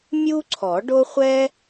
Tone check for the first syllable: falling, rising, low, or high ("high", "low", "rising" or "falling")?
high